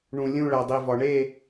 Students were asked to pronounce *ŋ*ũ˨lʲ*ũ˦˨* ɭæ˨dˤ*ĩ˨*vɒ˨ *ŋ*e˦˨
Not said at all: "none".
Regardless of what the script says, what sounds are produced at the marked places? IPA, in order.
ɳ, ũ˦˨, i˨, ɳ

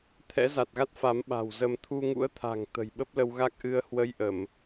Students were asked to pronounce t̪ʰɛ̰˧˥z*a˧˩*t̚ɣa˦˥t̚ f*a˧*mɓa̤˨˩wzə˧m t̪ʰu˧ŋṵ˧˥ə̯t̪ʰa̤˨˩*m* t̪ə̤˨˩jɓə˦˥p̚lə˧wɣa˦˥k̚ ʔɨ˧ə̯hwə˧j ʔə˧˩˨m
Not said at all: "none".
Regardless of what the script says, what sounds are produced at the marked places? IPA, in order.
a˨˩, a˨˦, ŋ

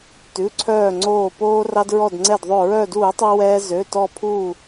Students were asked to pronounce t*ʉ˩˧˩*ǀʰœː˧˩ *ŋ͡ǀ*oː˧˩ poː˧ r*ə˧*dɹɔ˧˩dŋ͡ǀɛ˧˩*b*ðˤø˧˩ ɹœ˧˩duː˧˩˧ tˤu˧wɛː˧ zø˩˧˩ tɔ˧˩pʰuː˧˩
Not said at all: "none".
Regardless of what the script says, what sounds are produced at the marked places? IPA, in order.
ʉ˩˧˩, ŋ͡ǀ, ɑ˧, d

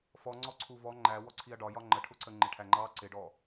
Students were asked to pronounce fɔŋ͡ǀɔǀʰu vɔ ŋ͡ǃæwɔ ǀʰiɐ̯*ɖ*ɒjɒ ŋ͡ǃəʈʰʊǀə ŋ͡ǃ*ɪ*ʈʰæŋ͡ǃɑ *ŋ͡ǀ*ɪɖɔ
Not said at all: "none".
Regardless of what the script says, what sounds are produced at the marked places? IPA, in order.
ɖ, ɪ, ǀ

